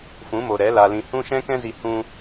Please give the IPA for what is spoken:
fũ˨˦mo˨ɾɛ˨˦ la˧lĩ˧ hũ˦ ʃɛ̃˦kɛ̃˦zi˧ hũ˦

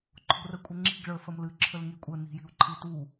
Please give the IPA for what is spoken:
ǃʰo̤rəkʷʼəŋ͡ǁi̤ɡ ɭə˞fɐmlɨ ǁʰəlŋikʷʼə ni̤ji̤u̯ǃʰitu

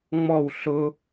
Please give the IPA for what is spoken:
ŋ͡mɔw ɬʊ

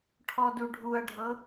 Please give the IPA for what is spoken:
ʈʰɔduɖʱuɐ̯ɖʱɤ

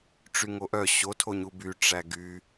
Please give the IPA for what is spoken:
ʈ͡ʂyŋoʔœ ɕotʰoɲu by ʈ͡ʂæɡy

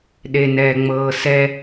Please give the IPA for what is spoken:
ɗenɛːŋ͡mɤːsɛ

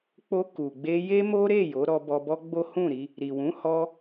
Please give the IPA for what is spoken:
k͡po˧ ku˨ɡ͡be˧ je˦mo˦ɾe˦˨ jo˨˦ ɾɔ˧bɔ˧bɔ˦ ɡ͡bo˦hũ˦˨ɾi˧ | ɾi˨wũ˨˦hɔ˧

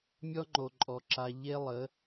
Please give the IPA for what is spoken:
mʲɔ˦ŋ͡ǃo˨ǃʼɔ˨ǁa˨ ʎe˦lˠə˨˦

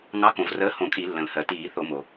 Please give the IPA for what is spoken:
ŋɑ˨˥kõ˩vrəː˨˥ hõ˧˩˧kʼi˧˩˧ lːə̃˩lhɜ˩ tiː˧˩˧θo˧˩˧mo˩

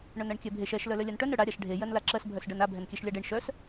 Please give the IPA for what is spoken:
ɳœnɜɳkʲɛbʱeʃ ɛʃ lœlœlʲanʈœn œɽa ɾʲaʃɖʱe jɜnlaǁɜs bʱœsɖɜna bʱɛnkʲɛʃlʲaɖeɳ ʃœs

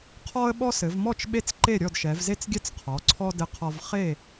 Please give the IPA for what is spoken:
qʰɔ˦ə̯ɓɔ˦ sɘ˩˧vmɔ˥˨t͡ʃ ɓe˥˨t͡sǃe˥˨ɾʲɔ˥˨dʃɛ˩˧v ze˦t͡sɡʲɛ˦t͡s qʰɔ˩˧ǀʰɔ˦ dɘ˦qʰɔ˦v χe˥˨

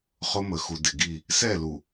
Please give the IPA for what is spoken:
χʊ˦mə˨xu˨ dɪ˨ɡi˦˨ | sɛ˦˨lu˨

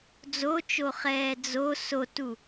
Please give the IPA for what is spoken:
d͡zot͡ʃoχɛː d͡zo sotu

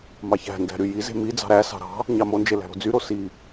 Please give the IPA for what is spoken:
mɑçæ̤ndæ̤ ɾyjize̤ mi d͡zɑ̤ɾæsɑ̤ ɾɑ̤ | ɲɑmond͡ʒe læ̤ɾo̤d͡zyɾo si

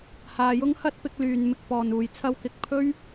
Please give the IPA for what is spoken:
haː˨jʊ˥ŋhɐ˥t̚ pɪ˨˥k̚lyː˨nmɪ˧k̚ pɔː˨nuː˨jt͡sʰɐ˥w kɪ˧k̚ pʰɵ˥ɥ

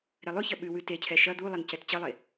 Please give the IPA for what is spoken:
ɾɛlˠʉçɐ ɓʉwʉ tecʰɛ ʃɐ d̪ulˠen cɛtt͡ɕɐlˠe

